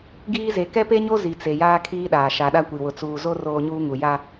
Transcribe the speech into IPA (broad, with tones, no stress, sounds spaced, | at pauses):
ɡ iː˦ z e˨ k ɛ˦ p e˦ ɲ o˦ z i˨ t͡s e˨ j aː˦ kʰ iː˦ ɗ aː˨ ʃ a˨ ɗ a˦ kʷ i˨ w ʊ˨ t͡s uː˨ z o˦ r oː˦ ɲ uː˦ ŋ u˨ j a˦